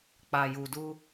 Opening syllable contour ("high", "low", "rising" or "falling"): low